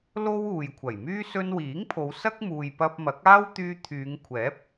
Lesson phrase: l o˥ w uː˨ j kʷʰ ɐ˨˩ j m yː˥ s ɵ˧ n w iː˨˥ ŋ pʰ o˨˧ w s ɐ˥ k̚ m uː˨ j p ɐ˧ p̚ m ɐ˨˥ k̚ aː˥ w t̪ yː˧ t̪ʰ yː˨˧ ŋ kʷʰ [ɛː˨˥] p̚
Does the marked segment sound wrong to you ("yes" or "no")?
no